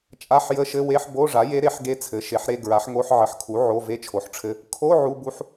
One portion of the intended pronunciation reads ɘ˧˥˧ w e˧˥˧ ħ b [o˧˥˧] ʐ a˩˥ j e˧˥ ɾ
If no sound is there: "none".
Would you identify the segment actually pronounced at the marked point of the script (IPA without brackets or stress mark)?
o˧˥˧